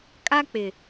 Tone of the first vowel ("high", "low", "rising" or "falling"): high